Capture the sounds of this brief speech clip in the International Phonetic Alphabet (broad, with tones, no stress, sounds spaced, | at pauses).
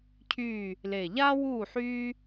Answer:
cʰ yː˦˨ | l e˨˩ ʎ aː˦ w uː˦˨ ħ yː˦